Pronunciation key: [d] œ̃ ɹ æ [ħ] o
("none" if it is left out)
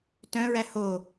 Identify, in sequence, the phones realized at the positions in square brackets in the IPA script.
t, h

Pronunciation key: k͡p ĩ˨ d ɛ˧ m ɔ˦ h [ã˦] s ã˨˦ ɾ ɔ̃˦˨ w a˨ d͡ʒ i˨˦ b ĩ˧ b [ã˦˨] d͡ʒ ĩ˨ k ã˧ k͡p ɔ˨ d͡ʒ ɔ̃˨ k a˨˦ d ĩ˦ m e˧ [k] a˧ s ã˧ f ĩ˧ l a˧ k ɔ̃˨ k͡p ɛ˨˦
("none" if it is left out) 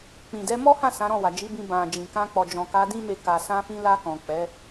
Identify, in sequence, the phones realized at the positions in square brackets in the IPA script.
ã˦˨, ã˨, k

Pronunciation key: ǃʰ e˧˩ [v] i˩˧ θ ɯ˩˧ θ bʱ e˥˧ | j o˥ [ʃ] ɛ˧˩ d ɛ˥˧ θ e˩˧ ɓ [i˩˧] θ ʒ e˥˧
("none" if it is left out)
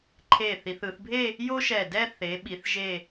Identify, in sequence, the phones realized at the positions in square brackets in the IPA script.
θ, ʃ, i˩˧

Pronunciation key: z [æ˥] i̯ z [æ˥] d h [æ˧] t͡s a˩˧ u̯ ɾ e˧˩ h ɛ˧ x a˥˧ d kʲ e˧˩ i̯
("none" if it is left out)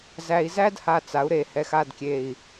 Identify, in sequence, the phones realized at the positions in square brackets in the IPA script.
æ˧, æ˥, a˧

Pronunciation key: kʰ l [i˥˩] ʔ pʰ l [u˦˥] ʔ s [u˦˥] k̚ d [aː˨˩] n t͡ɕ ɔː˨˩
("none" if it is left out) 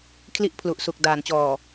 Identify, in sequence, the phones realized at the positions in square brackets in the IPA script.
i˥˩, u˨˩, u˨˩, aː˩˦

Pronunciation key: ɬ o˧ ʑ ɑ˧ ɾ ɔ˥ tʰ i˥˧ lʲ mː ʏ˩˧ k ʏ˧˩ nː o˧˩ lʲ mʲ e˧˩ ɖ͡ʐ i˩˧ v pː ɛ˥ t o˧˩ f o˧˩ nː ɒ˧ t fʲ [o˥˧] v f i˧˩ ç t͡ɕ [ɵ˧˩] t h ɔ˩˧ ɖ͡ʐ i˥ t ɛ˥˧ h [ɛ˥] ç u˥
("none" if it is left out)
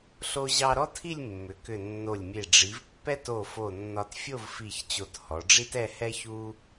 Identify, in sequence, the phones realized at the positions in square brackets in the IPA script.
o˥˧, o˧˩, ɛ˥

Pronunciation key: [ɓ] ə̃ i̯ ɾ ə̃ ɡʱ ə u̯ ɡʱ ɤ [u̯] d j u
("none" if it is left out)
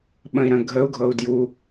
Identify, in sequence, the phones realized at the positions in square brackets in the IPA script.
ɓ, u̯

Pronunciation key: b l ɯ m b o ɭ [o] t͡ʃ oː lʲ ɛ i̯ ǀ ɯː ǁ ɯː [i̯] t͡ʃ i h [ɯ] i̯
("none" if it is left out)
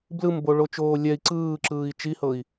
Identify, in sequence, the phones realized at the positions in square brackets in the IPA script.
o, i̯, ɤ

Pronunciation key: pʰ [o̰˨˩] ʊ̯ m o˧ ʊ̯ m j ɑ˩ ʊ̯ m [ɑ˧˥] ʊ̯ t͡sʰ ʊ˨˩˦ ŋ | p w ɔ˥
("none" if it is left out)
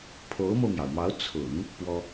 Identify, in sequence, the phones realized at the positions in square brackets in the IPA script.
o˧˥, ɑ˧˥

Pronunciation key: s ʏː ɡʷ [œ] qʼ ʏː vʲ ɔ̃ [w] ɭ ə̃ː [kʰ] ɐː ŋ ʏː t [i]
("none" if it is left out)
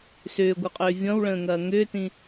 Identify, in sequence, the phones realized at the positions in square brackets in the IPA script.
œ, w, ŋ, ĩ

